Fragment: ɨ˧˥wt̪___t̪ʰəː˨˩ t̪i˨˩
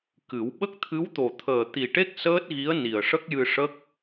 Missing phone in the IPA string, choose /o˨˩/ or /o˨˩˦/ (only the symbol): o˨˩